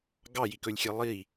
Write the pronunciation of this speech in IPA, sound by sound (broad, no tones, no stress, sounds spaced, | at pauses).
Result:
ɡ ɑ j i k ɵ lʲ xʲ e lˠ i